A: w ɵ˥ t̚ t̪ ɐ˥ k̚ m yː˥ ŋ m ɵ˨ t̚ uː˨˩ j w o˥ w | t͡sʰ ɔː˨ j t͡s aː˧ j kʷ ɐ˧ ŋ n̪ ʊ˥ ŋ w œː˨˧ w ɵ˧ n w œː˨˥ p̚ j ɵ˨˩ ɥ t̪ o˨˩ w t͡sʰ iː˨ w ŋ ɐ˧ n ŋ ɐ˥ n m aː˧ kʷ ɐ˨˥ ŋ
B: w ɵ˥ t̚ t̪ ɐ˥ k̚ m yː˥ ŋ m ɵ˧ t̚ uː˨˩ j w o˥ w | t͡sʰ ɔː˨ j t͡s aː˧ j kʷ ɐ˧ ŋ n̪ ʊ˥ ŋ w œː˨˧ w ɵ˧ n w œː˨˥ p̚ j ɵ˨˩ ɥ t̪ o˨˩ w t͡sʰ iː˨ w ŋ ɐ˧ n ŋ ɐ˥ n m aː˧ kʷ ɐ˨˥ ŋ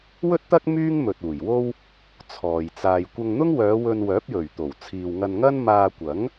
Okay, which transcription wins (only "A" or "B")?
A